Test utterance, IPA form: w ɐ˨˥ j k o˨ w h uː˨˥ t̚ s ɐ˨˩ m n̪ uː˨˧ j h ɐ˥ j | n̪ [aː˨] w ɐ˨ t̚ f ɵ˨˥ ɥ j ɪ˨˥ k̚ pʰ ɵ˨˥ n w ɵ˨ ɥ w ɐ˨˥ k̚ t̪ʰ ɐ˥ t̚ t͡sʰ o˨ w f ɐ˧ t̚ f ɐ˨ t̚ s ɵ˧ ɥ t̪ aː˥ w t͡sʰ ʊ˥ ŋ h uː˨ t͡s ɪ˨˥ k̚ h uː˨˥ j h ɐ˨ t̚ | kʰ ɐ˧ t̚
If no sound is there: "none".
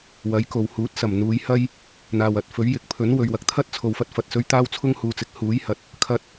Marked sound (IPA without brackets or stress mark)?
aː˨